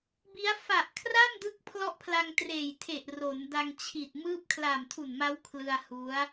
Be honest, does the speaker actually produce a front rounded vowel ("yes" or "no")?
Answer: no